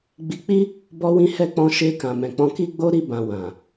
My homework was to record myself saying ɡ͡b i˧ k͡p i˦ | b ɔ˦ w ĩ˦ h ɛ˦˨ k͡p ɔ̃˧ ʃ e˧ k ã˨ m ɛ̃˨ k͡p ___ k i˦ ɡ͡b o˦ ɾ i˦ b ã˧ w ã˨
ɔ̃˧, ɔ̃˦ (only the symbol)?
ɔ̃˧